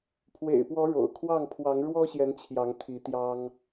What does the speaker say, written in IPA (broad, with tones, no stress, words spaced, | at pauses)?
pʰwḛ˨˩ɪ̯pwɔ˨˦ ɻo̰˨˩ʊ̯kʰwɑ˥˨ŋ pʰwɑ˨˦ŋɻwɔ˦ɕjɛ˨˦n t͡ɕʰjɑ˨˦ŋt̪ʰi˨˦t̪jɑ˦ŋ